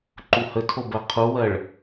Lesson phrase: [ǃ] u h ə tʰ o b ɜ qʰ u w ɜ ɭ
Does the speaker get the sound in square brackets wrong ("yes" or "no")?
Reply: no